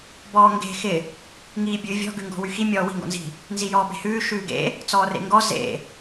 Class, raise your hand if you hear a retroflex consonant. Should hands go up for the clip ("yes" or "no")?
no